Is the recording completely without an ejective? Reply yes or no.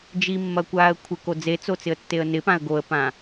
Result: yes